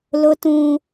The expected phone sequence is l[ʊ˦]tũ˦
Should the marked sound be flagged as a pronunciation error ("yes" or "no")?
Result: no